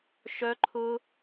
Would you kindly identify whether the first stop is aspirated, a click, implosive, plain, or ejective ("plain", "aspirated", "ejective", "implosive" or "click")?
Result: click